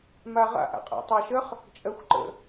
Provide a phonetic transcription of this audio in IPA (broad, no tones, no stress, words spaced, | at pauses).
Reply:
maʁa̰ʔ a̰qʼa̰tˤɑʃəχ | t͡ʃʼɜxʷǃə̰